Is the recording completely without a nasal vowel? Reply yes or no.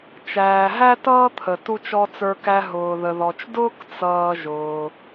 yes